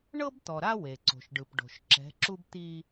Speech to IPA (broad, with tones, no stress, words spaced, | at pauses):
ɳɤ˦bt̪ɔ˨ɾa˦ we˨ǀo̤˨ʃɖɯ˨p ɖo̤˨ʃǁɛ̤˨˦ǁu˦b t̪i˦